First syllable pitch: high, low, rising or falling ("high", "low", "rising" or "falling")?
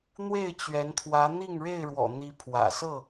falling